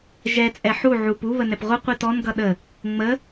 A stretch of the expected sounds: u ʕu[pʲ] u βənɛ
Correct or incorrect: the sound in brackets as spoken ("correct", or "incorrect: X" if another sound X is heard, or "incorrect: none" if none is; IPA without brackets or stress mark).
incorrect: p